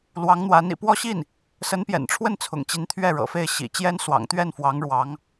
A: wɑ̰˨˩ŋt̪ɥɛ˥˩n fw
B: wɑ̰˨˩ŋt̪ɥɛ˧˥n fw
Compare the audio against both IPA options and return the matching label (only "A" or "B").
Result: A